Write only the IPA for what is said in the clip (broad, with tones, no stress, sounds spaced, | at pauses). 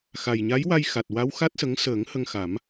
x a˨˩ j ɲ a˧˥ j w a˧ j x a˨˩ t̚ w a˧˥ w x a˦˥ t̚ s ə˧˥ ŋ s əː˨˩˦ ŋ h ə˧ ŋ x a˨˩˦ m